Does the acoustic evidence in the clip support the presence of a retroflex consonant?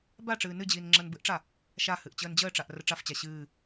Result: yes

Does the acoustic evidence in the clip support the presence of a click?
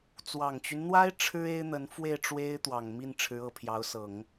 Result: no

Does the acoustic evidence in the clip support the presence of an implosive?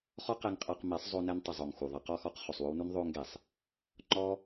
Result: no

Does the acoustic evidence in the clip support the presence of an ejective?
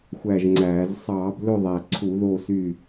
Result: no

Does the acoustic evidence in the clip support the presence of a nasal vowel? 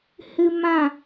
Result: yes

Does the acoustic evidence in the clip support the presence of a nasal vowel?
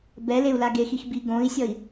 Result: yes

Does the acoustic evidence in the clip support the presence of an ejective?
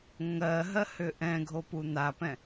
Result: no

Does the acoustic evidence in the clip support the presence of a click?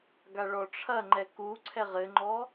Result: yes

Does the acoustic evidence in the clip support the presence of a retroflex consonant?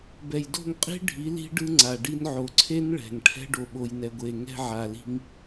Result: yes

